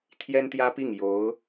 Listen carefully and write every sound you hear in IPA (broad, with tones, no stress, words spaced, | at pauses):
t̪ʰjɛ˥nt̪jä˥pi˥˩ŋ jo˧˥ʊ̯